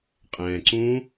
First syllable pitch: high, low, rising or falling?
low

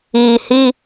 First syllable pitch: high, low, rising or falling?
low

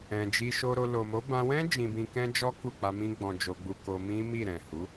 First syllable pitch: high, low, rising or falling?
low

